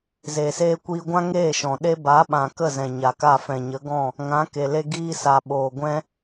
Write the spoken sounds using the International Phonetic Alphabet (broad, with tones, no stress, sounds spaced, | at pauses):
z eː˨ s eː˧ kʷ iː˧ ɡʷ ã˦ ŋ eː˦˨ ʃ ɔ̃˨ ɗ e˦ b a˨˦ ɓ ã˨ k ə˦˨ z ɛ̃˨ ɲ a˨ k a˦˨ f ɛ̃˨ ɲ ə˨˦ ɡ ɔ̃˦˨ | ŋ ã˨˦ k e˨ l e˧ ɡ iː˧ s a˨ ɓ oː˨ ɡʷ ɛ̃˦